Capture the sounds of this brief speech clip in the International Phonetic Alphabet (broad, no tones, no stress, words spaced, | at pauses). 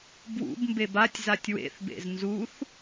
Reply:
bwṵbmbeb atʲzatʲ wḛθbḛz nzuθ